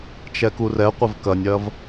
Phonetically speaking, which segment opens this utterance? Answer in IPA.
t͡ʃ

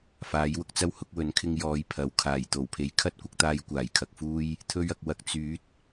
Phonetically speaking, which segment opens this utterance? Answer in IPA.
f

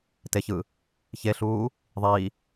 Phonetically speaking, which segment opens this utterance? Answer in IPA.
t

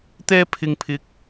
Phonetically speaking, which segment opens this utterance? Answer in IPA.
t̪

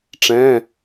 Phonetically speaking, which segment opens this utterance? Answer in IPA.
ʈ͡ʂ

